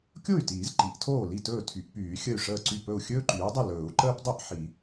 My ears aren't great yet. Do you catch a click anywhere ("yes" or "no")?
yes